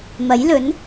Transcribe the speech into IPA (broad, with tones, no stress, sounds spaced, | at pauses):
m ɐ˨˥ j l ɵ˨˥ n